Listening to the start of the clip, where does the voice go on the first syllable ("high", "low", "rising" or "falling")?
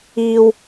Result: low